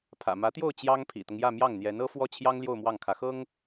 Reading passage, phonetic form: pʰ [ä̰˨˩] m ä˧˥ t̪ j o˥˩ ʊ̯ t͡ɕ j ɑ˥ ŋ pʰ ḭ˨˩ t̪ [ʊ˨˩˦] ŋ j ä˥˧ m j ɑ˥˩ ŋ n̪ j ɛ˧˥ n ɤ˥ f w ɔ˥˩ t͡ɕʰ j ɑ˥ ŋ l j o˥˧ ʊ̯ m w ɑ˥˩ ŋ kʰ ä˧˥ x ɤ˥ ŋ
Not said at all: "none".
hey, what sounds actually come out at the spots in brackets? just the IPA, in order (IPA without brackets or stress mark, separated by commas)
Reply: ä̰˨˩, ʊ˦